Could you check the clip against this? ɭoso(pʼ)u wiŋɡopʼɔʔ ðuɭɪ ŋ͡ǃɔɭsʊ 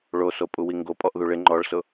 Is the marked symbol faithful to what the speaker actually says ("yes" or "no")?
yes